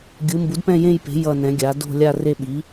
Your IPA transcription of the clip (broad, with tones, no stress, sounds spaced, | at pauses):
ɡʲ ɯ˩˥ m b u˩˥ d p ɛ̃˦˨ j ẽ˦˨ j p e̤˩˥ j ʌ˦˨ n ɛ̃˩˥ ɡʲ a˩˥ d o̤˦˨ lʲ a˦˨ r e˦˨ ɓ i˩˥